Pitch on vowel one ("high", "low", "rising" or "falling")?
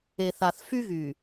low